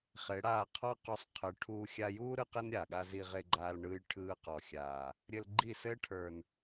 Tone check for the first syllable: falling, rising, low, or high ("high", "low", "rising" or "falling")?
rising